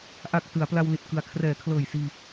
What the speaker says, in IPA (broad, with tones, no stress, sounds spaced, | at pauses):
ʔ a˨˩ k̚ t ɯ˩˦ a̯ p l a˧ w l i˨˩ t̚ k ɯ˨˩ a̯ kʰ r ɛː˩˦ kʰ l ɤː˨˩ j s iː˧